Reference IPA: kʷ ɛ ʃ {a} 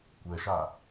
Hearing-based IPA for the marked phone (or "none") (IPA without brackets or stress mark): a